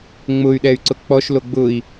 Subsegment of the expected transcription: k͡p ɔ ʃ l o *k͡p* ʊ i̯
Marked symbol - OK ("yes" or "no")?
no